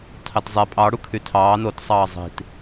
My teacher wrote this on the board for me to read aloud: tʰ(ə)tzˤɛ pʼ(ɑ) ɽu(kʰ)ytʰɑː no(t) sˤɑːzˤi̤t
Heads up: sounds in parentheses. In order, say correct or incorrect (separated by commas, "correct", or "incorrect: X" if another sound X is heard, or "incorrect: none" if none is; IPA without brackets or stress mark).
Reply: incorrect: ɑ, correct, correct, correct